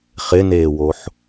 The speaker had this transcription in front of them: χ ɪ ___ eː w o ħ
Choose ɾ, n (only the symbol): n